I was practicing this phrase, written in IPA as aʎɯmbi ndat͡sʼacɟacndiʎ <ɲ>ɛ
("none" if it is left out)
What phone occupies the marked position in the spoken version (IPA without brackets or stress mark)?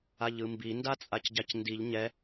ɲ